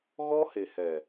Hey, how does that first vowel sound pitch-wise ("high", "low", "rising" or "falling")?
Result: high